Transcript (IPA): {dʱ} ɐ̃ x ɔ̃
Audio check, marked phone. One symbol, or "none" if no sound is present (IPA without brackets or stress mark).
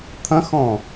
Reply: t̪ʰ